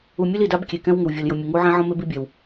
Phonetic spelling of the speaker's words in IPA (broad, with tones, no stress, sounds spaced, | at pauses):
u˨ mʲ ʊ˦ l i˨ d a˦ b kʲ e˨ k ɛ̃˦ w ŋ ɪ˨ w vʲ ɔ˨ l j ʊ˨ mʲ ʊ˨ ŋ u˦ ʕ ɛ̃˦ ʕ ɔ̃˦ m e˦ b i˦ bʲ a˨ w